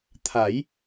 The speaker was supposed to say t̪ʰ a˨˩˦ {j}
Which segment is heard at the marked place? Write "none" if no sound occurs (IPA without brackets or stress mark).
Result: j